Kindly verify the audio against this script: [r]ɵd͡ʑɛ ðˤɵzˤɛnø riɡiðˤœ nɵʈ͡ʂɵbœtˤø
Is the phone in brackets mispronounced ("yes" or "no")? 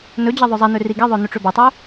yes